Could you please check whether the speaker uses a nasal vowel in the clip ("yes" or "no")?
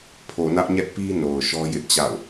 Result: no